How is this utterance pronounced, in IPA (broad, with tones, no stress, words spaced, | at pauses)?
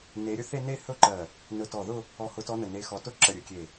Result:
ne˨˦ɾʲɵ˥˧θe˥˧ne˥˧ hɵ˥˧ǃɜ˧˩ | nɵ˧˩tɔ˧˩ðʊ˥˧ | ɔ˧˩hʊ˨˦tɔ˨˦ nə˧˩ne˨˦xɔ˨˦tʊ˥˧ ǁə˧˩ɾʲɵ˧˩kʲe˧˩